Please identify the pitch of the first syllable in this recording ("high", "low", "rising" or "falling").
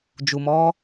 low